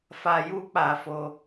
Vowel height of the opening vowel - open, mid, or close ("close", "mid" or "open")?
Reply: open